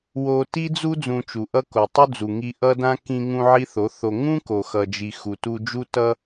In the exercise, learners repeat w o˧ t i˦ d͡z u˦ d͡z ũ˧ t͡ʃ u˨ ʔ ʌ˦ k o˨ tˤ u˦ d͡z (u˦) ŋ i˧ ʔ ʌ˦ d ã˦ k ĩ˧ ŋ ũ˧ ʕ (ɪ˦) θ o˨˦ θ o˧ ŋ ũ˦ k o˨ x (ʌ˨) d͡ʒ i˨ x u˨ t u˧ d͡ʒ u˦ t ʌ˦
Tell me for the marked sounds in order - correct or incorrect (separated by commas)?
incorrect, incorrect, correct